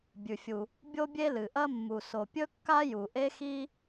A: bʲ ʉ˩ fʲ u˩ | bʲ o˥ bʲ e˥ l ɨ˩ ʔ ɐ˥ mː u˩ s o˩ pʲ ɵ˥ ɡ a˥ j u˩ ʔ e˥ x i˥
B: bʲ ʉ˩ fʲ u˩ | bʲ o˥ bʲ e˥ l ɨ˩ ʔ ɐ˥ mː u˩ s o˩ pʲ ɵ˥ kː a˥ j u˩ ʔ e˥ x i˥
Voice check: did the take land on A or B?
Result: B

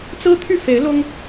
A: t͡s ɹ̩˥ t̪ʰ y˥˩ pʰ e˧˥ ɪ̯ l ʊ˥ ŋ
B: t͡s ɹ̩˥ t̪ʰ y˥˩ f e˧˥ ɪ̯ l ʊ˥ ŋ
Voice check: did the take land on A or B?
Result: B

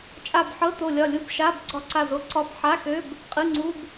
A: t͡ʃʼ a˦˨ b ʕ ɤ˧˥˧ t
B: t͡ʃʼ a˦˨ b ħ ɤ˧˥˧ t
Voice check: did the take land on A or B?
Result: B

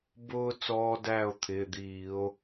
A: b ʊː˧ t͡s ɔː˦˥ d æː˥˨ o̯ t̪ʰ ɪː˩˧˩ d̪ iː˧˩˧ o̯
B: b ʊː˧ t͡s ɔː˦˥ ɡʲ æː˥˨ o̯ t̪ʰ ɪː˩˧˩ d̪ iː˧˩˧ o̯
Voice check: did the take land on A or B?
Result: A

